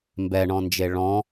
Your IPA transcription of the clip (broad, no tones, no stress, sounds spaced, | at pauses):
m b ɛ ɳ ɔ̃ n d͡ʒ e ɭ ɔ̃